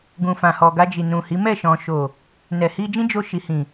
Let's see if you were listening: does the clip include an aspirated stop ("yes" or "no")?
no